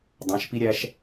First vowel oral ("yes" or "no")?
no